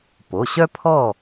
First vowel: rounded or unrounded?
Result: rounded